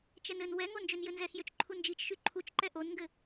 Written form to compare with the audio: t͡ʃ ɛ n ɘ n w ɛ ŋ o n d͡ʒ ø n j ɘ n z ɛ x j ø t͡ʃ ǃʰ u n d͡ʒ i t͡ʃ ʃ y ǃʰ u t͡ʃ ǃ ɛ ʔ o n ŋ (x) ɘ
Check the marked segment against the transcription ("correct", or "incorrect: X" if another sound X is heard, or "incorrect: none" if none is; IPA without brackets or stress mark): incorrect: ɡ